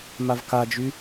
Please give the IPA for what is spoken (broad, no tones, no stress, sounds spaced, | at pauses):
m a v k a d͡ʒ y